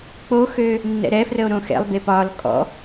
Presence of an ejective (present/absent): present